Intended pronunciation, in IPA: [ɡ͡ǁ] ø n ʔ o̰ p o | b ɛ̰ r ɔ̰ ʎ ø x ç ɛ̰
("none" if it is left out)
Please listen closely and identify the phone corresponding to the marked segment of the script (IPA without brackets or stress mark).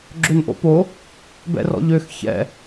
ɡ͡ǁ